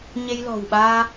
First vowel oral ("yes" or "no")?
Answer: yes